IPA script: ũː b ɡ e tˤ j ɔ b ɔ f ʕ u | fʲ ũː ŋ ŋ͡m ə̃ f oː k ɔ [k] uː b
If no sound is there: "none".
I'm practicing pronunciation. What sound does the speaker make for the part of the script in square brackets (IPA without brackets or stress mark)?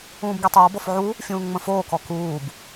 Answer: k